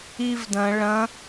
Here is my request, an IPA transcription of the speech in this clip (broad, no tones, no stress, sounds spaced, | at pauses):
i v d ɐ̃ ɭ ɐ̃